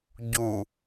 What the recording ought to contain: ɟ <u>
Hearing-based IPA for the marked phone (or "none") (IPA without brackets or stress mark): u